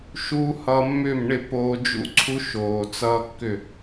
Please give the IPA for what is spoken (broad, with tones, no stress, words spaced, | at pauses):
ʃuː˦ hʌː˧mːʏː˦˨mɳɪ˦˨ poː˧d͡ʒṵ˦ ǀʰu˦ʃoː˨ t͡sʌː˧ kːʏ˦˨